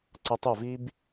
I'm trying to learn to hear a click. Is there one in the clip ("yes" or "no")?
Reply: yes